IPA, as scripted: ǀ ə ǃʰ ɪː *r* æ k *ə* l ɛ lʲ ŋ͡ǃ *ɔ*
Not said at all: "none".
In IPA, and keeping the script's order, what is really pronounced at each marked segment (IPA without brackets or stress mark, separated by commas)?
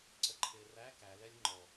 r, æ, ɔ